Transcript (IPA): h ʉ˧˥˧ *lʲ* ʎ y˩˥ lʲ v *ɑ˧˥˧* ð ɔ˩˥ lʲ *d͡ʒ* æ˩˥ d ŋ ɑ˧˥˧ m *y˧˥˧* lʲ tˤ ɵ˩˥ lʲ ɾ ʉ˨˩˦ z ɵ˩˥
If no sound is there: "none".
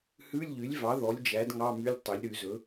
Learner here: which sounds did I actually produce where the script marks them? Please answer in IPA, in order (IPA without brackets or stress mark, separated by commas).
lʲ, ɑ˩˥, d͡ʒ, y˧˥˧